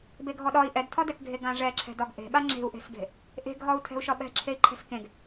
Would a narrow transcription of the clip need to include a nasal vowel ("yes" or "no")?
yes